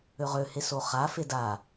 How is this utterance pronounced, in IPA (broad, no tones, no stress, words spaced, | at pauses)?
øʁøhe soχa feda